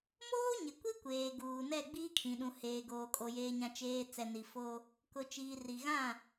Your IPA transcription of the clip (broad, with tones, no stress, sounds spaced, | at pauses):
m oː˦ ɲ ɪ˨ kʷ i˦ kʷ eː˨ ɡ uː˨ n ɛ˦˨ ɡ͡b iː˦ kʰ ĩ˨ ɗ ũ˨ h eː˨ ɡ oː˨ kʼ o˨ j eː˨ ɲ ã˨ t͡ʃ eː˨ t͡s ɛ˨ n i˨ f o˦ | k ʊ˨ t͡ʃ iː˨ r i˨ ɣ ã˦˨